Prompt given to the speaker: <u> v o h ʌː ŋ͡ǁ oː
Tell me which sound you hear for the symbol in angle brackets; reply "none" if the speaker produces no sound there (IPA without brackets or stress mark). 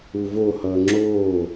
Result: u